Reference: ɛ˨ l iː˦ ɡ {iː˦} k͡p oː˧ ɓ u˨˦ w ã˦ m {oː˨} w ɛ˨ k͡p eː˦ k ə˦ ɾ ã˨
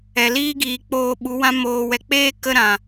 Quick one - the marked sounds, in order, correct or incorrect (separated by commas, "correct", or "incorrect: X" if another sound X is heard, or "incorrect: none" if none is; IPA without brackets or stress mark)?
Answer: incorrect: iː˨, correct